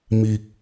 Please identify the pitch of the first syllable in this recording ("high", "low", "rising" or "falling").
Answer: low